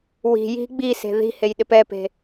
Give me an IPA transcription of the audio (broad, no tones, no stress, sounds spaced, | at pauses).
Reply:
w i̤ j i̤ ɡ͡b i s e̤ ð i̤ h e j ɗ ɪ p ɛ p e̤